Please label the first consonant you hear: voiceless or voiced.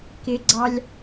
voiceless